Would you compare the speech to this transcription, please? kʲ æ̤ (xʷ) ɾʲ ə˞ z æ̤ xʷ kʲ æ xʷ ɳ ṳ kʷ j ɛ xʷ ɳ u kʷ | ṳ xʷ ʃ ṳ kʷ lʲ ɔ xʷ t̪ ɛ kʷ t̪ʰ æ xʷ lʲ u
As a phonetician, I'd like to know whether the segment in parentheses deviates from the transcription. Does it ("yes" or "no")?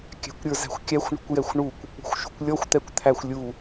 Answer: yes